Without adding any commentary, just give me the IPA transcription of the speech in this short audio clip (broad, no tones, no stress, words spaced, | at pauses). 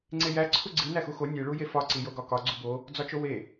ŋ͡ǀejæ ǀʰuɡ͡ǀi næxuxo nʲe ɭujefɒ ǀijoɡɒkɒ ɡ͡ǀubo | d͡zɒt͡ʃowe